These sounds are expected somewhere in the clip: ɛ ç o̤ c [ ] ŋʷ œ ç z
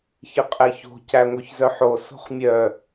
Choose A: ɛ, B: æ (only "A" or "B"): B